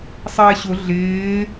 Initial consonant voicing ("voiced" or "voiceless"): voiceless